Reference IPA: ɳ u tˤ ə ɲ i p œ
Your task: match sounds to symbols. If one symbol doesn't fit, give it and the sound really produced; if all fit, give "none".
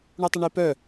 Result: ɲ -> ɳ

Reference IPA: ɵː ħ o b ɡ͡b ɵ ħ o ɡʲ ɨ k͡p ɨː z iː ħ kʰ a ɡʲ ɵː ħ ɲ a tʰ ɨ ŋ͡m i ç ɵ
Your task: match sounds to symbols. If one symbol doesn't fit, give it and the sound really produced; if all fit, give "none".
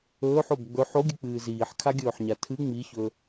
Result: none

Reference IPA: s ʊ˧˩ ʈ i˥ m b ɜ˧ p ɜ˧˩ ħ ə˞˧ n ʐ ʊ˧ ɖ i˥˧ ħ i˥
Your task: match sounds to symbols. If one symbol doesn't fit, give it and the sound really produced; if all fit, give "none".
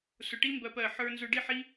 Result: ʐ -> z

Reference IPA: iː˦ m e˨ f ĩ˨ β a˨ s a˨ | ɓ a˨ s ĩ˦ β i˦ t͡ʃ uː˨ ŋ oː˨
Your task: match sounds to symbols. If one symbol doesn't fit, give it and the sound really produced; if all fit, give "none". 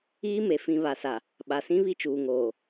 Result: none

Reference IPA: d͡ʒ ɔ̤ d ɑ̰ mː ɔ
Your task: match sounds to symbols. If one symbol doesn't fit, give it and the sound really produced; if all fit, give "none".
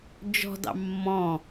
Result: ɔ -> ɔ̃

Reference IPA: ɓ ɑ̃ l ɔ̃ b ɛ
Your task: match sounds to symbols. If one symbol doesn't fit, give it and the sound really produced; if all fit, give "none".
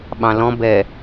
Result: none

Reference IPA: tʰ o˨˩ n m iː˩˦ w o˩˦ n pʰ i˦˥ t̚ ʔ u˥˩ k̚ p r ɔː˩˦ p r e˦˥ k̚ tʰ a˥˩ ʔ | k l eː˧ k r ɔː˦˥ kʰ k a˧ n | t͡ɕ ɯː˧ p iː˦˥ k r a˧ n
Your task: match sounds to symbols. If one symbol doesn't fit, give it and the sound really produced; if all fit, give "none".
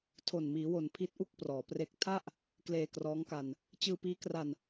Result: kʰ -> ŋ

